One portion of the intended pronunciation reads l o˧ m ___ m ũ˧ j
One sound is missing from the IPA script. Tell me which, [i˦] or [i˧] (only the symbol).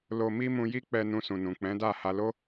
i˦